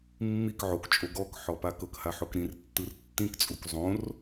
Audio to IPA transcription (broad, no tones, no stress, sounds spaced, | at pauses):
mː i k ʕ o k t͡ʃʼ o ɡ ɔ k ħ ɔ p a k ɤ k h a ħ o k ɾ ĩ r tː ɯ r tː ĩ k t͡sʼ u k zˤ õ r